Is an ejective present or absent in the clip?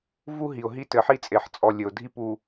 present